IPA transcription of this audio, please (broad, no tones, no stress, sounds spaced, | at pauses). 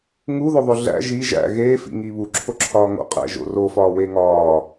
ŋ u ð o ðˤ o ɮ æ̰ ʒ i ʒ æ̰ ɣ eː f ḭ ŋ i β u ǁʰ o ǁʰ ɒː ŋ o̰ qʼ æ̰ ʒ o̰ r o f ɒː w e ŋ ɒː